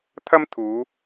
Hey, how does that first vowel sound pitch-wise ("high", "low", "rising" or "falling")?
high